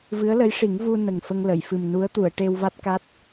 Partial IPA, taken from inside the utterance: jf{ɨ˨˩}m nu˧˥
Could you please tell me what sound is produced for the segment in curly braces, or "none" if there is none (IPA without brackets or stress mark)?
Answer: ɨ˨˩